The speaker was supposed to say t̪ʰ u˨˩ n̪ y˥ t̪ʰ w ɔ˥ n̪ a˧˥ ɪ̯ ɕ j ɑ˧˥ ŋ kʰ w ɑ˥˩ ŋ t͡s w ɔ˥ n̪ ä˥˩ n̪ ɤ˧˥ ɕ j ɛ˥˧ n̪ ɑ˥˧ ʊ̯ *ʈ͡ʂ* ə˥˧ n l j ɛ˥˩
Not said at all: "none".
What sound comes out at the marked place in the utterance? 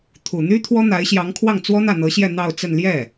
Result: t͡s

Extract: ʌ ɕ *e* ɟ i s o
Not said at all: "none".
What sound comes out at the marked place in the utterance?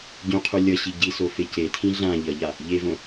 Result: i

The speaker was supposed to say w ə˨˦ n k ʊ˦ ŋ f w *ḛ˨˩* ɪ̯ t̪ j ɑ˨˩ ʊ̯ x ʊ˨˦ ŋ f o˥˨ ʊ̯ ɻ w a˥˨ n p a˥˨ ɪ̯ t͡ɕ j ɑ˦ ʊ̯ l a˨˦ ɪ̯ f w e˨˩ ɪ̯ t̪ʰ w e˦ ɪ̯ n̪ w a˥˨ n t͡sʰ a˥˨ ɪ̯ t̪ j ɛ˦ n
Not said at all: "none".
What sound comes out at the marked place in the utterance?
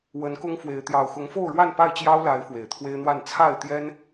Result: e˨˦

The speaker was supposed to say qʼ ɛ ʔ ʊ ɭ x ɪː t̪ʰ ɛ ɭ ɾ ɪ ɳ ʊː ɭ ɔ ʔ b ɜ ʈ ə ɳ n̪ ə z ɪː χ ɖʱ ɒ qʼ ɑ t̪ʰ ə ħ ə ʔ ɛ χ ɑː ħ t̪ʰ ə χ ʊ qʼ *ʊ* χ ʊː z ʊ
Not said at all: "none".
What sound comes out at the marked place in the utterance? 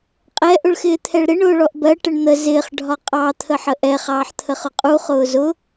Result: u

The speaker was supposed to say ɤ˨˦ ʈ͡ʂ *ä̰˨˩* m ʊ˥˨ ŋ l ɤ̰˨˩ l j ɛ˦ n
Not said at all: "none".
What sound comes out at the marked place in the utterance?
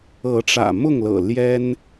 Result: ä̰˨˩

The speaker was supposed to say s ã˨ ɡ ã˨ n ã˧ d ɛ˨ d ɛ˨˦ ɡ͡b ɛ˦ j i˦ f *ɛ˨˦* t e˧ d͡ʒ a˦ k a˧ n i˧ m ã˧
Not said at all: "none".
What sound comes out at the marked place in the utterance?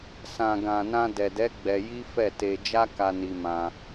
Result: ɛ˦˨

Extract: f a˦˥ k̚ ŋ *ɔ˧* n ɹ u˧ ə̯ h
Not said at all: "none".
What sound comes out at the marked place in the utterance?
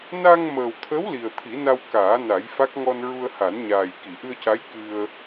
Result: ɔ˧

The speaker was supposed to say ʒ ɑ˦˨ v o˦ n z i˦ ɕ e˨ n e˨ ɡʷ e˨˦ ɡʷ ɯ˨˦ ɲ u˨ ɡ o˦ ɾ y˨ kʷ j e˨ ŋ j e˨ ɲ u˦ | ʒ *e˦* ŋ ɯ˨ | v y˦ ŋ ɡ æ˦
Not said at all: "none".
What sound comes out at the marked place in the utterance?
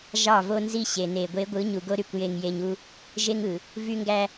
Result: e˦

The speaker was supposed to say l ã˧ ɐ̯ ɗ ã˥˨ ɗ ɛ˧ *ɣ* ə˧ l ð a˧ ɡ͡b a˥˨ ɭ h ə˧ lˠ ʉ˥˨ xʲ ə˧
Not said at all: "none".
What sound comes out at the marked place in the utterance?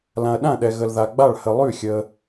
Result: ɣ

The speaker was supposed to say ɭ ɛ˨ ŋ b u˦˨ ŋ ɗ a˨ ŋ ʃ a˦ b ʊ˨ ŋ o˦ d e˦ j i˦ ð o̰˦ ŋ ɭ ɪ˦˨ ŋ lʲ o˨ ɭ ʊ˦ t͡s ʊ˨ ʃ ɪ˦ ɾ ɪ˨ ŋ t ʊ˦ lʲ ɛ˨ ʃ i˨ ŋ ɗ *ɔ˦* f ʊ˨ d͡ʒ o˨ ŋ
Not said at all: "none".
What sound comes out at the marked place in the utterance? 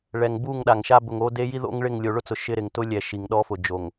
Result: ɔ˦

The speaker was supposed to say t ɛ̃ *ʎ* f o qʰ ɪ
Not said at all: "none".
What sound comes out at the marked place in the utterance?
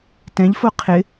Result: ʎ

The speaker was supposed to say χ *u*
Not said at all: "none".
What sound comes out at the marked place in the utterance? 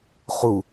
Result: u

